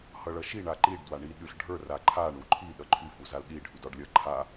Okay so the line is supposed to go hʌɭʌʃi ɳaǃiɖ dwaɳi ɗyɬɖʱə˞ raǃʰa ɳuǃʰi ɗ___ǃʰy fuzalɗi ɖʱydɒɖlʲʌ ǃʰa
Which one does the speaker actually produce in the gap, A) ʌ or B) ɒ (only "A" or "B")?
A